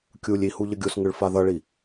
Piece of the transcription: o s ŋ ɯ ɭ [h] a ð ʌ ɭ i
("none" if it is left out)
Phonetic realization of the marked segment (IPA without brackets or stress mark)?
f